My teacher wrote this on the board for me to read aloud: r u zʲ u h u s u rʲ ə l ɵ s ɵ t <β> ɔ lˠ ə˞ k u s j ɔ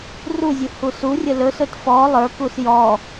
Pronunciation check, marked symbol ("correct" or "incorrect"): incorrect